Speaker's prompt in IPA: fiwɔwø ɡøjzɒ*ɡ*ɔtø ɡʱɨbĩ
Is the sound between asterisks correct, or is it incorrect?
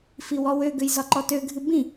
incorrect